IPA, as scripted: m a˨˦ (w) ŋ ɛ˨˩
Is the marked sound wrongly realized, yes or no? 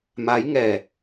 yes